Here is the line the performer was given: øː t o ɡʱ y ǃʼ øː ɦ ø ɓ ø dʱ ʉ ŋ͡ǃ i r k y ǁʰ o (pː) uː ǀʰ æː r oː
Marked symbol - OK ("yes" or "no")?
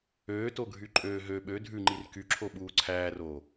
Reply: no